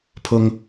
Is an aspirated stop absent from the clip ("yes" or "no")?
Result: no